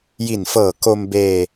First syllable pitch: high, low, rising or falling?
low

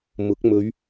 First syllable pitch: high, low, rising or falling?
rising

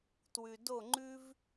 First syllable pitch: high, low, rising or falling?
low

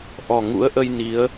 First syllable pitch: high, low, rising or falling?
low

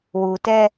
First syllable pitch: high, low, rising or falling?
low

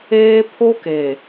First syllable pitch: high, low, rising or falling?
high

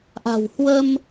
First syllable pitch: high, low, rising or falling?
low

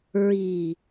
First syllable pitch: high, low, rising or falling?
low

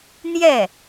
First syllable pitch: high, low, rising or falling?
falling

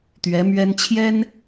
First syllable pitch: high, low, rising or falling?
rising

